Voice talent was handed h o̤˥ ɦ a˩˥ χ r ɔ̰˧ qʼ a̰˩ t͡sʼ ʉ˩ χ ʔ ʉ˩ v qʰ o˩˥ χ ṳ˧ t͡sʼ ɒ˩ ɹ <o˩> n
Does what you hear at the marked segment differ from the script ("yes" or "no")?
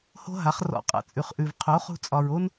yes